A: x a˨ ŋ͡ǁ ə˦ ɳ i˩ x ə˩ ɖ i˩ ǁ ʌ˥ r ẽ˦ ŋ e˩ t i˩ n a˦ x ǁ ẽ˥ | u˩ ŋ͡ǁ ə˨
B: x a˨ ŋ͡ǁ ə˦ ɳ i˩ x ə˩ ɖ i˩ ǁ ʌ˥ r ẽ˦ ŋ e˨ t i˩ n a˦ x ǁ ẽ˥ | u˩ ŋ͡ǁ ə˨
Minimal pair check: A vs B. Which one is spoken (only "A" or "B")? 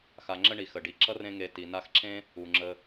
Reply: B